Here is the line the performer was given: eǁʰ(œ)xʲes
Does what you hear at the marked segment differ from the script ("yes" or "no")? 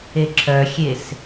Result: no